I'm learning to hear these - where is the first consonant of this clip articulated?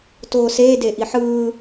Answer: tongue tip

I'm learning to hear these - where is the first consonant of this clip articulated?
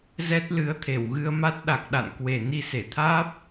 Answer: tongue tip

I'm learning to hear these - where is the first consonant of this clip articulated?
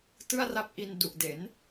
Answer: tongue tip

